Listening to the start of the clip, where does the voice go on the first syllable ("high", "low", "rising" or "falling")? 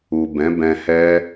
low